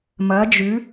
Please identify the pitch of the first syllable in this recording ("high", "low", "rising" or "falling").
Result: rising